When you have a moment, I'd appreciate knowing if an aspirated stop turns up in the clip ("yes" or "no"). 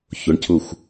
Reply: yes